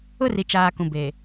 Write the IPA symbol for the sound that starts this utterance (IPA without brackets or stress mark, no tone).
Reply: ʊ